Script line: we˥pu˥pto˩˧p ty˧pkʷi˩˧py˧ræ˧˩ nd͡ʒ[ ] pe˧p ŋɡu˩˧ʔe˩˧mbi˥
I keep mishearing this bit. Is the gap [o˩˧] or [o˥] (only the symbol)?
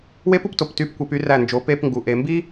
o˩˧